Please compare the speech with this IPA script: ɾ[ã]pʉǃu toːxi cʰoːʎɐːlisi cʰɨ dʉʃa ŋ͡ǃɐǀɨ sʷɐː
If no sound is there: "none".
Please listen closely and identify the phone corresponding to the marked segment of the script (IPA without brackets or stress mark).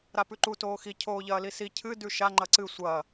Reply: a